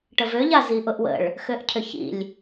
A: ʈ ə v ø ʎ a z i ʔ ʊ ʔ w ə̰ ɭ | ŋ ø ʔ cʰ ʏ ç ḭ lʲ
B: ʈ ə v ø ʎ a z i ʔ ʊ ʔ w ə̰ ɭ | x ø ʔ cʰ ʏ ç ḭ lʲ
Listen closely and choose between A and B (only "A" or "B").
B